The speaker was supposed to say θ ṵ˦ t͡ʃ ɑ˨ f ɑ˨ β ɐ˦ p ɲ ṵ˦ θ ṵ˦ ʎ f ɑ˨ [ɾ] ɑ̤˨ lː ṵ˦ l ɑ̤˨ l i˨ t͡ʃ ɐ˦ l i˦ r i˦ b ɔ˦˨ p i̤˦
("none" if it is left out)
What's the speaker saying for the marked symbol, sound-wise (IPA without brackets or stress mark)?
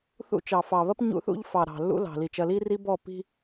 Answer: ɾ